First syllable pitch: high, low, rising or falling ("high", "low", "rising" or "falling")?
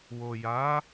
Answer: low